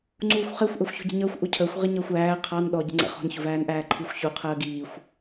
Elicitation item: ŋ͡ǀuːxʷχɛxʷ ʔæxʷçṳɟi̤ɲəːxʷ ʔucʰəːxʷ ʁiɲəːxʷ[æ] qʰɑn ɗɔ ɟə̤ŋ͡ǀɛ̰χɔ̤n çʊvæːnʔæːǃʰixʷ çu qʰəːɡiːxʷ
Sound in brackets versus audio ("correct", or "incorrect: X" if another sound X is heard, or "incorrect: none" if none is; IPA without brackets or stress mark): incorrect: æː